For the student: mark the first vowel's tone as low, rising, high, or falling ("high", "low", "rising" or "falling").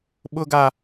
high